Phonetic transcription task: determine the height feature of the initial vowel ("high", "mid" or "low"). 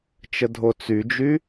mid